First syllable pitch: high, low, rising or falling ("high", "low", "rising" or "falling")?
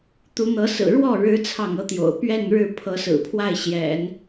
rising